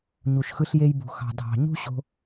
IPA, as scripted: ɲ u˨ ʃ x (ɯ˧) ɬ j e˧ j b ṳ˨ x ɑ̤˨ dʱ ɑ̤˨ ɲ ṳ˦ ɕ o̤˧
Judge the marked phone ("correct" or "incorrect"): correct